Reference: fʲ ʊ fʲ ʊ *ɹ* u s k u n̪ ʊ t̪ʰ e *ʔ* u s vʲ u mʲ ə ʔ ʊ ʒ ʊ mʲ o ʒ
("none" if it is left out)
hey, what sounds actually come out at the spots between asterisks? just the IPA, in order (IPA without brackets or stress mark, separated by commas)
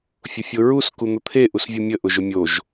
ɹ, ʔ